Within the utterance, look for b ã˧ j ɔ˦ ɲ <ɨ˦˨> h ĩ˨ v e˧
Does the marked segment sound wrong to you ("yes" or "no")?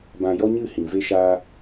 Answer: no